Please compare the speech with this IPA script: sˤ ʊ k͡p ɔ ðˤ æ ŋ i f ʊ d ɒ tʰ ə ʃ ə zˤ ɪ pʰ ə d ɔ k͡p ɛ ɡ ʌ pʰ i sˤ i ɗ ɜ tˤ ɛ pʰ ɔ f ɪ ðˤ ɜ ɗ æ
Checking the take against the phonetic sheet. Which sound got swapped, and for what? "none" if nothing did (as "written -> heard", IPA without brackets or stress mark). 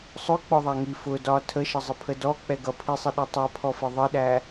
none